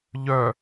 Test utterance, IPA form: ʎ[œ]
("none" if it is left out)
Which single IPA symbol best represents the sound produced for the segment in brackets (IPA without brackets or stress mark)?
œ